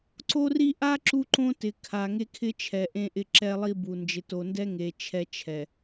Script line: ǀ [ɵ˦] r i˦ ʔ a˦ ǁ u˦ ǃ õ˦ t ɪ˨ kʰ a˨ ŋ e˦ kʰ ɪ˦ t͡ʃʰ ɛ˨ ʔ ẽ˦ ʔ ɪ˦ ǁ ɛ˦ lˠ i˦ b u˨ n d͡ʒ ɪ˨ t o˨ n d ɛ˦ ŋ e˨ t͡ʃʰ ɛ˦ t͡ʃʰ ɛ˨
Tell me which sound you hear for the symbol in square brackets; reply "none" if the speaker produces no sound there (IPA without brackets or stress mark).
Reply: o˦